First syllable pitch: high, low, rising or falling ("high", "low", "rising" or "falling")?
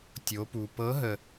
rising